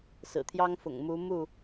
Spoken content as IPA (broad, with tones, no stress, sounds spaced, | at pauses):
s ɹ̩˨˩ t̪ʰ j ɑ˦ ŋ f ʊ̰˨˩ ŋ m u˨˦ m u˥˨